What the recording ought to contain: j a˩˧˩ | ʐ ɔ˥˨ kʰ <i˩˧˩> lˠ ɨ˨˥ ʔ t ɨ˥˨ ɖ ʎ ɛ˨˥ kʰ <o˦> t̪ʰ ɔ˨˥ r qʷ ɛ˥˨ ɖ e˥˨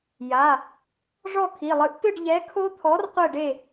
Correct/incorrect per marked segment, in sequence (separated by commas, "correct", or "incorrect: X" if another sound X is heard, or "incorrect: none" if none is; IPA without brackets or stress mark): correct, correct